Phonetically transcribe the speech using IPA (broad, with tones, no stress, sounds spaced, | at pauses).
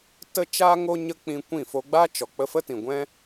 t ə˦ t͡ʃ aː˦ ŋ o˦ ɲ ə˦ k͡p ĩ˧ kʷ ĩ˦˨ f o˦ ɡ͡b a˦ t͡ʃ ɔ˨ k͡p ə˧ f ə˦ t ĩ˨ ɡʷ ɛ̃˦